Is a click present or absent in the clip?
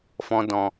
absent